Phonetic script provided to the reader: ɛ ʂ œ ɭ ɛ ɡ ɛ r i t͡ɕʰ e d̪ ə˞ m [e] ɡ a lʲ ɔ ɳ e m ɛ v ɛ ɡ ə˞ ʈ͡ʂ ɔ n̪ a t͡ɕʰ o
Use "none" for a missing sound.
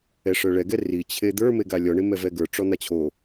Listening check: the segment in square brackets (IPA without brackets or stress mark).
e